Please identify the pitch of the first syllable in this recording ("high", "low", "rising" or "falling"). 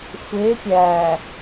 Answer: rising